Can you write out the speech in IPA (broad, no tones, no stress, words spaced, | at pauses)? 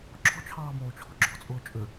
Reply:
ǁɔ̤t͡ʃʰɑːmoːt͡ʃʰɔ̤ ɡ͡ǁɔ̤t͡sʼʊː t͡ʃʼʏ